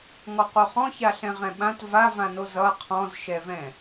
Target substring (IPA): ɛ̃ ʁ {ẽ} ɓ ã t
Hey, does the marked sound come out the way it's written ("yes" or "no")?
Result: no